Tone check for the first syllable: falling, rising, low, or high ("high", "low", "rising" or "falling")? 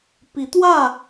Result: rising